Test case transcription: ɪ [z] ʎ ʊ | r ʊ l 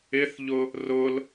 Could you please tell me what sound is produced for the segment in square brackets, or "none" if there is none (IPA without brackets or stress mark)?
θ